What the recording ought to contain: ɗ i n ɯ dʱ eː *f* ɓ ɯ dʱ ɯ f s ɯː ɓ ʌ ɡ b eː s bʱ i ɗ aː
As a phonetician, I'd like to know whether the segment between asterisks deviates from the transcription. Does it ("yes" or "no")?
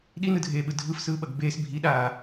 yes